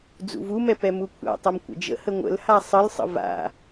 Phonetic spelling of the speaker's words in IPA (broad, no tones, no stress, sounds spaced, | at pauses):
d͡z ṵ v u m ɛ p ɛ m u kʷʰ a̰ tˤ ʌ m kʷ ə̰ d͡ʒ ə̰ h ə ŋʷ ə̰ l h a sˤ ə l sˤ ə̰ v a̰